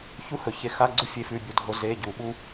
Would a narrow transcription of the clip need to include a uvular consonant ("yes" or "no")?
no